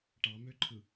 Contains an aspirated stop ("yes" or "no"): yes